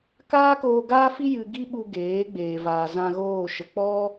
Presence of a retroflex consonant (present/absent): absent